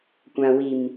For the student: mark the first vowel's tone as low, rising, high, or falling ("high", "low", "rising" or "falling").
low